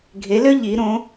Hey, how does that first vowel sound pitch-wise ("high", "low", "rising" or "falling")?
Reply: rising